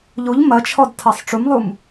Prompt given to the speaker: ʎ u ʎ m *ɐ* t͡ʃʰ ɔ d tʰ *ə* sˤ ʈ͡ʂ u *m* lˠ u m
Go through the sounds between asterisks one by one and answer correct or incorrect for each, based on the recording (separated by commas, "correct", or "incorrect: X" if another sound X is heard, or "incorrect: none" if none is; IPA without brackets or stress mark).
correct, incorrect: a, correct